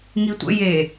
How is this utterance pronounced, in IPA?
ŋ i tʷ ə̰ j e

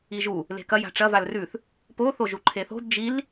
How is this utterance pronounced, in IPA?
i ʒ u | l e̤ k ɐ j a̤ ʈ͡ʂ ɐ v a l r ʉ θ | p o θ o ʒ u ǃʰ e θ o̤ d d͡ʒ i l

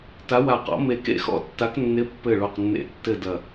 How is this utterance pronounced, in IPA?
t a˨˥ w a˧˩ q ɔ̰˨˥ m e˧˩ k ḛ˥˨ x ɔ̰˥˨ tː a˨˥ k nː ɪ˨˥ pː ɘ˧˩ ɭ o˧˩ q nː ḛ˧˩ tː ɘ˥˨ d ɐ˧˩

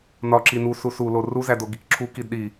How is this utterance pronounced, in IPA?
n ɒ ǁ i n u s u s u l o r u z æ d o ɡ i k ǁʰ u k i d ɗ i

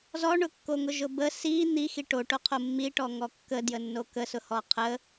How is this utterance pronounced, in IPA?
z ɔ ɳ ʊ kː o ŋ ʊ ʒ ʊ b ə s i n̪ i x i ʈ o ʈ o qʰ o mː i ʈ ɔ ŋ ɔ kː ə d j ə nː o k ə s ʊ h ɔ qʰ ə

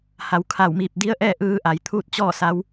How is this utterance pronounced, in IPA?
h a˩˧ w kʰ a˧˩ w m iː˧˩ p̚ d i˧˥ ə̯ ʔ ɛː˥˨ ʔ ɯː˧ ʔ a˩˧ j t̪ʰ uː˥˨ t̚ t͡ɕ ɔː˥˨ s a˧˥ w

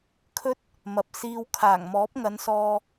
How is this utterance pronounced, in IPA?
kʰ ɵ˥ t̚ | m ɐ˨ p̚ s iː˧ w kʰ aː˨˩ ŋ m ɔː˨˥ p̚ ŋ ɐ˨˧ n s ɔː˧

